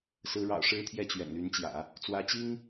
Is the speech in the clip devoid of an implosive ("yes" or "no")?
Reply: yes